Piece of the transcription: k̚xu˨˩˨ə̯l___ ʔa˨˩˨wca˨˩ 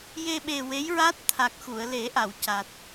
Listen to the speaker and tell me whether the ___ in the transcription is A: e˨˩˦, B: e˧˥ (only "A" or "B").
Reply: A